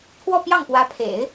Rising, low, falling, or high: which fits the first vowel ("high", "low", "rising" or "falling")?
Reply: falling